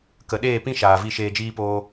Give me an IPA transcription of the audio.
k ə˨ ɗ eː˦˨ p ĩ˦ ʃ aː˨ v i˧ ʃ eː˧ d͡ʒ iː˦ p oː˦

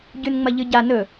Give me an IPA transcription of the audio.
ɟ ʉ n ŋ͡m ɐ ʎ ɨ ɟ a n ɵ

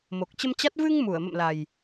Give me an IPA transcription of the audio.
m o˨˩ k̚ t͡ɕ ə˧ m t͡ɕ a˦˥ t̚ v ɨ˧ ŋ m u˧˩ ə̯ m ə̰˧˨ m l a˨˩ j

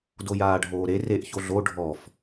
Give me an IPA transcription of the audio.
d o j aː ɖʱ oː ɾ e r e ʔ ç o ɮ o ɖʱ ɔ f

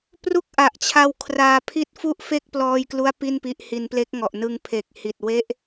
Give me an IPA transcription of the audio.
p r u˥˩ k̚ ʔ a˨˩ ʔ t͡ɕʰ a˧ w kʰ r aː˧ pʰ i˥˩ t̚ f u˥˩ ʔ f e˥˩ k̚ p l ɔː˧ j k l u˦˥ a̯ p i˥˩ n p i˦˥ ʔ h i˧ n p l e˦˥ k̚ ŋ ɔ˨˩ ʔ n ɯ˧ ŋ pʰ e˨˩ k̚ h i˨˩ t̚ w e˦˥ ʔ

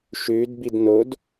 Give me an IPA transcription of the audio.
ʃ ʉ d b i d n o d

